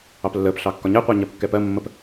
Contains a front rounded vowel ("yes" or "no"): no